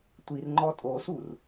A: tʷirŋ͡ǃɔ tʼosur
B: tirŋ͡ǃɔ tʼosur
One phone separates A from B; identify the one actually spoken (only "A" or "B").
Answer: A